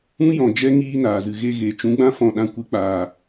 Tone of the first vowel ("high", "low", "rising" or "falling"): high